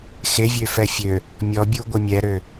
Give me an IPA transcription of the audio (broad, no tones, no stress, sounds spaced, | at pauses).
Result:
x e vʲ ø f ɛ fʲ ø | mʲ ɔ bʲ u ɡʷ ə mʲ ɛ ɾ ø